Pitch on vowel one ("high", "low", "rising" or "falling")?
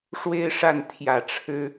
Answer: high